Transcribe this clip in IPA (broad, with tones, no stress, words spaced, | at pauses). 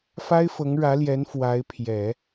fa˥ɪ̯fɤ˧˥ŋɻä˧˥ljɛ˧˥n fwa˧˥ɪ̯pʰjɛ˨˩˦